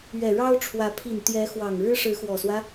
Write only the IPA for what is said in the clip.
ɥɛ˨˩ɻɑ˥ʊ̯ʈ͡ʂʰwä˧˥ pʰi˨˩nt̪jɛ˧˥xwɑ˨˩ŋ ɻɻ̩˥ʂɻ̩˧˥xwɔ˨˩swä˦

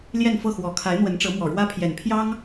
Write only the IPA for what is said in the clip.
ljɛ˥˧nfɤ˥˩ xwɔ˨˩ kʰa˧˥ɪ̯n̪wə˧˥nʈ͡ʂɤ˧˥mwɔ˨˩ ɻwä˥pʰjɛ˨˩npʰjɑ˥ŋ

